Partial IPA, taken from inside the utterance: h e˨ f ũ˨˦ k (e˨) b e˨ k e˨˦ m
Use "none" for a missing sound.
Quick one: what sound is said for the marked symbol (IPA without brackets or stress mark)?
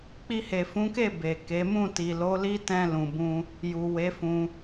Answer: e˦˨